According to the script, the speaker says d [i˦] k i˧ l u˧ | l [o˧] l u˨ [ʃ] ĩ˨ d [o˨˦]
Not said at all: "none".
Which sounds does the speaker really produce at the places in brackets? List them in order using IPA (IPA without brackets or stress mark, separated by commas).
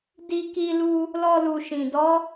i˧, ɔ˧, ʃ, ɔ˨˦